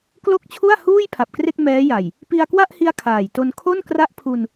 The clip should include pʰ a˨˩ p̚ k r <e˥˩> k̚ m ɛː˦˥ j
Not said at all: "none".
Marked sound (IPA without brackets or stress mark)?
e˥˩